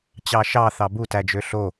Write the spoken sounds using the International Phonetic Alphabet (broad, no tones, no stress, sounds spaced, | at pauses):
t͡ɕ ɑ ʃ ɑ θ ɑ b u t æ d͡ʒ ø ɬ o